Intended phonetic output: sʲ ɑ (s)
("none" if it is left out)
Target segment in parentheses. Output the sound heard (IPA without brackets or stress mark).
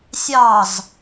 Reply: z